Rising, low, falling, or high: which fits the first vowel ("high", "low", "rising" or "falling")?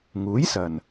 rising